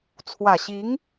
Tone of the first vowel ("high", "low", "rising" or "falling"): low